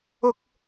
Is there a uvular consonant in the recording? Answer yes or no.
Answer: no